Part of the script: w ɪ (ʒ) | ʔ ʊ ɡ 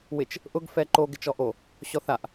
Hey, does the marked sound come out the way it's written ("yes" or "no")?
no